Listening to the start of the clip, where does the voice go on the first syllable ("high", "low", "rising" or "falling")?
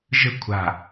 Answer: falling